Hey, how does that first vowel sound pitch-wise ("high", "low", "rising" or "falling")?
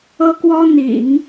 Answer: high